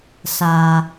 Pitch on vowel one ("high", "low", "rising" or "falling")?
low